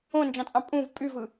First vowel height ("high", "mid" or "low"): mid